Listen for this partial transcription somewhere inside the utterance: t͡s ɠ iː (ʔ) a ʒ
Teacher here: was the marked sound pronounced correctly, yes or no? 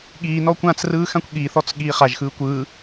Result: no